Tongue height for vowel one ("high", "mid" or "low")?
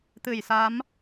high